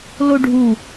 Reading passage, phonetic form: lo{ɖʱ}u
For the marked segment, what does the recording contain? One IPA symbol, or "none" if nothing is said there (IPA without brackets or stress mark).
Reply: ɖʱ